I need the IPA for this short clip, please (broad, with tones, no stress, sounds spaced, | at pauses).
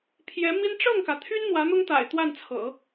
pʰ j ɛ˧˥ m i˥ n ʈ͡ʂ ɤ˥˩ ŋ k ä˩ t̪ʰ y˥ n n̪ w ä˧˥ n̪ ʊ˥ ŋ t̪ a̰˨˩ ɪ̯ t̪ w a˥˩ n t͡sʰ ɤ̰˨˩˦